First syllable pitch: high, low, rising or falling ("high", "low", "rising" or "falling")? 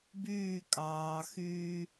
falling